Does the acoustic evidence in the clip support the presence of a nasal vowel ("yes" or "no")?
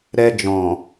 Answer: yes